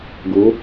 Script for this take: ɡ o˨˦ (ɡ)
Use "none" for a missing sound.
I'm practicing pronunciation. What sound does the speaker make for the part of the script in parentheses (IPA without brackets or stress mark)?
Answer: none